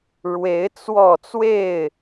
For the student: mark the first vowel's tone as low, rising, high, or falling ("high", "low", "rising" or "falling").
rising